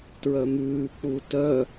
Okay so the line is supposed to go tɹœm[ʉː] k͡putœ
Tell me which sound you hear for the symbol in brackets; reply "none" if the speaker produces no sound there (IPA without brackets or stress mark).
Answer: ʉː